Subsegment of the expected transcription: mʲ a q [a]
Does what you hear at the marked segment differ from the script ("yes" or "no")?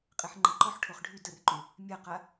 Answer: no